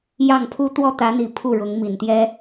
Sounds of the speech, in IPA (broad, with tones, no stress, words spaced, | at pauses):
jɑ˥˩ŋpʰu˥ t̪wɔ˥˩t̪ä˧˥n̪i˨˩ pʰu˥˩ɻʊ˧˥ŋmi˨˩nt̪jɛ˥